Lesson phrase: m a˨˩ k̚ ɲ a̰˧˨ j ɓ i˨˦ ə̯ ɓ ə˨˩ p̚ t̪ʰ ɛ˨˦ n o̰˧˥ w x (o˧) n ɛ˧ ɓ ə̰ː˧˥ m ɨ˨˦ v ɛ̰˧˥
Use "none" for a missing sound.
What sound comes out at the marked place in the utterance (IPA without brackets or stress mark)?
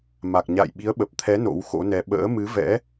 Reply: o̰˧˥